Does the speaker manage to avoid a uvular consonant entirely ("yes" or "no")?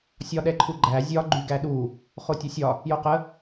no